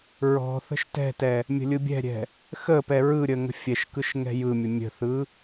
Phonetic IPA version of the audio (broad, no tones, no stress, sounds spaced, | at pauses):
ɹ ɔ̤ θ ə̤ ʃ t ɛ̤ t ɛ | mʲ ə̤ lʲ ɯ bʲ ɛ̤ ɾʲ ɛ̤ | x ə p ɛ ɹ ɯ ɾʲ ə ŋ ə̤ fʲ ɛ ʃ k ɯ ʃ ŋ ɛ̤ j ɯ mʲ ə mʲ ə̤ θ ɯ